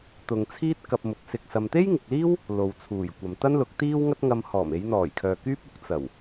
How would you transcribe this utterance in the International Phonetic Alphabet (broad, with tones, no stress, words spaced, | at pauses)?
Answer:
t̪ʊ˨ŋt͡sʰiː˥t̚ kɐ˧p̚mʊ˨˥k̚sɪ˧k̚ sɐ˧m t̪e˥jŋɪ˨k̚liː˥w | lo˨wt͡sʰuː˨˩jkʷɐ˨m t̪ɐ˥nlʊ˨˥k̚t̪iː˥w ŋɐ˥t̚ŋɐ˧mhɔː˨˩m e˨˧jn̪ɔː˨˩jkʰœː˨ kyː˥p̚ʊ˨˥k̚ t͡sɐ˨˩w